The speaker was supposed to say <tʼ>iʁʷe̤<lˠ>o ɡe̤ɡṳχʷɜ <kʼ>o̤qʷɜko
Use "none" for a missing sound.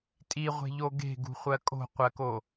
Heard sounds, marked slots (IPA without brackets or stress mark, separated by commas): tʼ, ʎ, kʼ